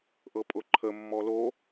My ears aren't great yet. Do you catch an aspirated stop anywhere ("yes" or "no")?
yes